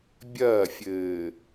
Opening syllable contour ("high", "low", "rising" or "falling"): falling